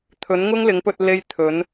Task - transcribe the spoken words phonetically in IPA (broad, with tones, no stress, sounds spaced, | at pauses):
t̪ʰ ɵ˨˥ n ŋ ʊ˥ ŋ l ɪ˨˥ ŋ p ɵ˧ t̚ l e˥ j t̪ʰ ɵ˨˥ n